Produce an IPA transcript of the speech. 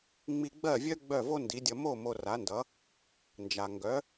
ŋ͡m i˧ ɡ͡b ɜ˥˩ vʲ œ˥ ɡ͡b œ˥˩ v o˥ n d i˩˥ dʲ ʌ˧ m o˥˩ m o˧ r a˩˥ n d ʌ˩˥ | n d͡ʒ a˩ ŋ ɡ œ˩˥

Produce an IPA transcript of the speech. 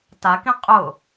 t a k ĩ qʼ ʊ

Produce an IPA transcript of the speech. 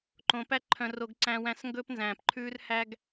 ǃ õ˧ p æ˦ ǃʰ œ̃˧ r o˧ ɡ ǀ æ̃˧ w æ̃˧ s ŋ ɡ ɵ˦ p n z æ̃ː˨ p ǃʰ ʉː˦ r h æ˦ ɡ

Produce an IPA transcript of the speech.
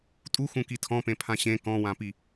tʼ u x ũ k i tʰ ɔ̃ p ẽ pʰ ã ɕ ẽ k ɔ̃ w ã p i

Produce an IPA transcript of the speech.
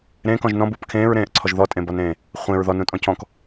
ɾ ẽː k ɔ̃ ʒ n ɔ̃ b u p kʰ ẽː ɹ ɾ ẽː ʔ ǀʰ ɔ ʒ ð ɔ tʼ ẽ b ɒ n ẽː | χʷ ẽ ɹ ð ɔ n ũ tʼ ɔ̃ cʰ ɔ̃ k

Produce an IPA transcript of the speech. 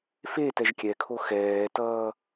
f e t ɛ ʒ kʲ ɛ kʰ o x ɛː t ʌː

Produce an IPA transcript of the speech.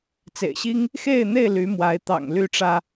t͡s ḛ˨˩ ɪ̯ ɕ i˦ ŋ | x e˥˨ ɪ̯ n̪ e˥˨ ɪ̯ l y˨˦ m w a˨˦ ɪ̯ t̪ ɑ̰˨˩ ŋ l y˥˨ ʈ͡ʂ ä˦

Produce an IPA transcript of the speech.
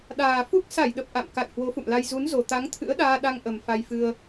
ɗ aː˨˩ f u˦˥ k̚ s a˧˩ j ɗ ə˨˩ p̚ ʔ a̰˧˨ m k a̰˧˨ j h w o˨˦ f ṵ˧˨ m l a˧ j z u˨˦ n z o˨˩ t̪ a˨˦ ŋ t̪ʰ ɨ̰˧˥ ə̯ ɗ aː˧ ɗ a˧ ŋ ʔ ə˨˩ m f a˧ j f ɨ˧ ə̯

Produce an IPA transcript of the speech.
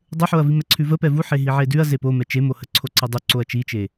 dˤ ə ħ o ɐ̯ v i m ɛ ǀʰ ʉ v ə p ɛ v u ħ e ɦ i ʕ e d ʉ ɐ̯ z e p o m ɛ t͡ʃ e m o h ə ǀʰ o ǀ ə dˤ ʉ ǀ o ɐ̯ t͡ʃ i t͡ʃ e

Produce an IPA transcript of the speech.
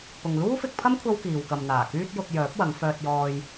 p ʊ˨ ŋ l uː˥ f ɪ˧ k̚ pʰ ɐ˥ m kʷʰ ɐ˥ w k iː˨ w k ɐ˨ m n̪ aː˨˩ k yː˥ t̚ j ʊ˧ k̚ j œː˨˥ p̚ w ɐ˨˧ ŋ f œː˧ t̚ j ɔː˧ j

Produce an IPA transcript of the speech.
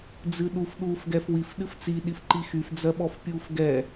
d͡z ɨ ɗ u f ɗ uː f ɡ ɛ f w i f ɗ ɨ f t͡s i ɗ i f ǃ i x y f d͡z ɜ ɓ ɔ f pʲ uː f ɡ ɛ

